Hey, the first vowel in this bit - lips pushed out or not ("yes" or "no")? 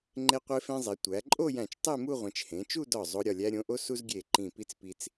no